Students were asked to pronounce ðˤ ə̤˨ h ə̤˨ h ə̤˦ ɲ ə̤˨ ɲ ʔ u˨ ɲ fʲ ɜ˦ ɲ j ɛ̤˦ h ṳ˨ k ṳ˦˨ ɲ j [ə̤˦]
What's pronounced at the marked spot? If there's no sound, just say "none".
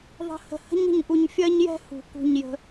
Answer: ə̤˦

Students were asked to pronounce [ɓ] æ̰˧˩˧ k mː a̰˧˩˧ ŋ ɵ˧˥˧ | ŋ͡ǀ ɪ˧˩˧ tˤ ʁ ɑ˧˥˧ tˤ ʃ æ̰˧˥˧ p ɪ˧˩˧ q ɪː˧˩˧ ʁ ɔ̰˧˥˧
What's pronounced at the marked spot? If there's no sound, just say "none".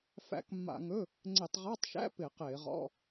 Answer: f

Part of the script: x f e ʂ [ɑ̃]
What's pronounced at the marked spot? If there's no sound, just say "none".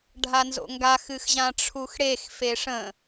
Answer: ə̃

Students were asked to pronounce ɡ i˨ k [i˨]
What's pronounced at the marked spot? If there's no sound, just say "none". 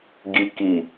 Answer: i˨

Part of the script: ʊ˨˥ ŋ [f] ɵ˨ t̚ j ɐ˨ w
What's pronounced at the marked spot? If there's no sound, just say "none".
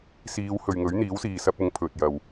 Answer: pʰ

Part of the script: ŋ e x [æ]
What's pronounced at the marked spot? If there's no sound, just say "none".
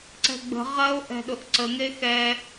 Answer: ɛ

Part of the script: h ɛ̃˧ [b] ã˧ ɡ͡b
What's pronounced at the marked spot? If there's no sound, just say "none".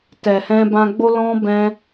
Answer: b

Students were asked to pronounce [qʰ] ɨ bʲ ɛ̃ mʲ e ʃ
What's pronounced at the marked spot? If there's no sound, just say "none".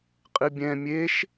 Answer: qʼ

